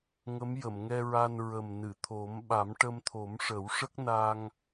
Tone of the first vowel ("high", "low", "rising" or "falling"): rising